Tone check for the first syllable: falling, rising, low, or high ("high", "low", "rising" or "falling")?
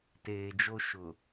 low